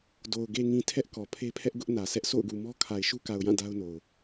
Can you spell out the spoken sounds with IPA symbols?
do˨ʊ̯ ɡe˨ŋĩ˨ tʰɛ˦ʔ kɔ˨pʰe˦pʰɛ˦ʔ ɡʊ˦ʔnä˨sɛ˦ʔ so̰˦˨ʊ̯ɡu˨mɔ˦ kʰa˨ɪ̯ʃu˦ka˨ʊ̯jã˦˨ da˦ʊ̯no˨ʊ̯

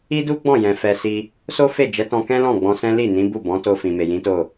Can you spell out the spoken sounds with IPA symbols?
i˦du˦ɡ͡bɔ̃˦˨jɛ̃˨ fɛ˧si˧ | so˦fe˦˨d͡ʒɛ˨˦tɔ̃˧ kɛ̃˦lɔ̃˦˨ ɡ͡bɔ̃˧sɛ̃˦ li˦˨ nĩ˨˦bu˦˨bɔ̃˨˦ to˧fĩ˨me˨ jĩ˨˦to˦˨

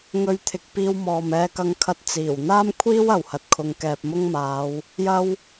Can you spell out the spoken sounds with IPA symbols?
ŋɵ˧ɥt̪ʰɪ˨k̚piː˧w mɔː˨mɛː˧kɐ˧ŋkʰɐ˧t̚ t͡siː˨˩wn̪aː˥mkʷʰiː˥w ɐ˨whɐ˧t̚kʰʊ˧ŋ kɛː˨p̚mʊ˥ŋmaː˨˧w | jɐ˥w

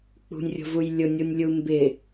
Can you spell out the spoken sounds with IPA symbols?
k͡pṳnʲrʲo̤vuj lʲʊnʲunʲlʲu mbɪ

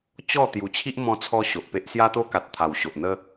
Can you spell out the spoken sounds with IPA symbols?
t͡ɕɔ˥˧ t̪ju˨˩t͡ɕʰi˦ʔ mɔ̃˧t͡sʰɔ˧ ɕo˨ʔpe˦ʔ sja˦t̪o˦ka˨t̚ t̪ʰa˨˩wɕo˨ʔn̪ə˦

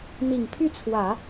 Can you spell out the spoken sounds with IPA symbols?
n̪i˨˩ŋt̪ʰy˥˩t͡sʰwä˨˩˦

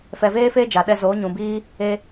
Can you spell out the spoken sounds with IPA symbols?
fɛ˨veː˦fe˦ d͡ʒa˨ɗɛ˧zoː˨˦ ɲũ˨biː˦ | e˧

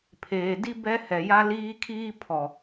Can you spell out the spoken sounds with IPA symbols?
pʰeː˨di˦ bɛ˦hɛ˨ja˦ liː˦kʰiː˦ pʰɔ˨

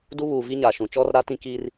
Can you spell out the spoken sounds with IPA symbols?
du˦ βuː˨vi˦ ɲa˨ʃũ˨ t͡ʃɔ˦rɾa˦tĩ˦ ki˦r

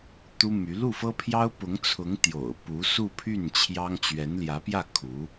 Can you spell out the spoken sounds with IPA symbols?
t̪u˥my˧˥ lu˥˩fɤ˥pʰjɑ˥ʊ̯ pʊ˧˥ŋt͡sʰʊ˧˥ŋ t̪jo̰˨˩ʊ̯pu˧˥su˥˧pʰy˥˩n t͡ɕʰjɑ˥ŋ t͡ɕɥɛ˧˥nljä˧˥pjä˥˩ kʰu˧˥

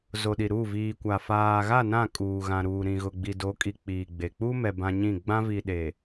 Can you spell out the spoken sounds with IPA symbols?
zo˨ɗi˨ɾuː˦˨ viː˨kʷa˨ faː˨ɣa˦˨ nã˦˨kʼuː˨ɣã˨ɾuː˨ ɾĩ˨ɣʊ˨ ɡ͡bi˨do˨˦kʼi˨ k͡piː˨ɡ͡be˨ k͡pu˦mɛ˨ bã˦ɲĩ˦˨ ɡ͡bã˦vi˨ɗe˨

